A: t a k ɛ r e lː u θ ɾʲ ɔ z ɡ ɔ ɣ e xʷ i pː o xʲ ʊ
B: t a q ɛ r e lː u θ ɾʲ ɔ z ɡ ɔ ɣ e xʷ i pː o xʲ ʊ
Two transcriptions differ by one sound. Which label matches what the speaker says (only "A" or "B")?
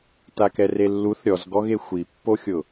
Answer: A